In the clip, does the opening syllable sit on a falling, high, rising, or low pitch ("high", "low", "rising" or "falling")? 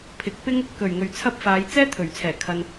rising